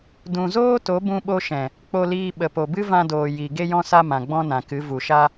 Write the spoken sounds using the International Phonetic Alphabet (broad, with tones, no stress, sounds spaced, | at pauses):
d ũ˨ z oː˦ t o˨˦ b ũ˧ ɓ o˧ ʃ ɛ̃˨ | k͡p o˧ l iː˧ ɓ ə˨ p o˨ b ɨ˦ v ã˧ d oː˨ j i˨ ɡ e˧ j ɔ̃˧ s a˧ m ã˨ ɡ͡b ɔ̃˦ n ã˨ k ɨ˨˦ v u˨ ʃ a˦